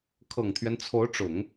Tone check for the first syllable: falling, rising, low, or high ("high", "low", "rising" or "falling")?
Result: low